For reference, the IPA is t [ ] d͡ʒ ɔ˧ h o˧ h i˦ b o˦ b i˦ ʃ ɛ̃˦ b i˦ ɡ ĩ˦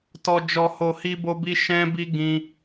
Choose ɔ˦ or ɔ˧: ɔ˧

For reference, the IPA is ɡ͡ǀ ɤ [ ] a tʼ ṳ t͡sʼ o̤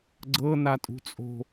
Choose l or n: n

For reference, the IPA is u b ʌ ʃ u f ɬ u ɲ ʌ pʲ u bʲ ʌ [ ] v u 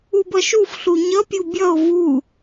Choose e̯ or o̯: o̯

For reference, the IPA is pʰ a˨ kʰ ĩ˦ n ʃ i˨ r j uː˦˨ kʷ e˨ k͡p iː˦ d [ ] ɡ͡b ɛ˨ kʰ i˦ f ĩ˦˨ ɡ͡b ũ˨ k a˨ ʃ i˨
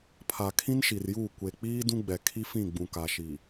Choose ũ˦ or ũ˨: ũ˦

